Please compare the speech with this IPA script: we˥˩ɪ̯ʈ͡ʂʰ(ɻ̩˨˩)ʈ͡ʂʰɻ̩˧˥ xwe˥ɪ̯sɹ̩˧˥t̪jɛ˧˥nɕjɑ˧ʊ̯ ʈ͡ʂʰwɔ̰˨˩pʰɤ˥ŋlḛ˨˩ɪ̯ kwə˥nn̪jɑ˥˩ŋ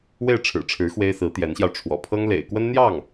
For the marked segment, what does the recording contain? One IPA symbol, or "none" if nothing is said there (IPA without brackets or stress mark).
ɻ̩˨˩